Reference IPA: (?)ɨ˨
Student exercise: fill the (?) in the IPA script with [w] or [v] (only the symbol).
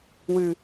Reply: w